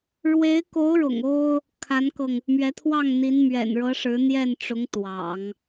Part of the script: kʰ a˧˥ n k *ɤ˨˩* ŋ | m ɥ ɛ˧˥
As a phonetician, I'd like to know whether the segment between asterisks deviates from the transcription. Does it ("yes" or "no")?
yes